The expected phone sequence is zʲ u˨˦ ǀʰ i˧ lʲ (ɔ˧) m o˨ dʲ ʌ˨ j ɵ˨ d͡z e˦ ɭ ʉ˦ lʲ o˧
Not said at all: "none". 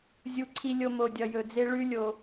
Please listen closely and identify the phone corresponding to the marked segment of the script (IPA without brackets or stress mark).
o˧